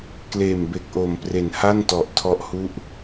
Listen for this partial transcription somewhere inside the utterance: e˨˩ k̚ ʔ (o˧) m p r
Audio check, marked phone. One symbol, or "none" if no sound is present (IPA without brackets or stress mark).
o˨˩